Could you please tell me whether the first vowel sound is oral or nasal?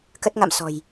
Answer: oral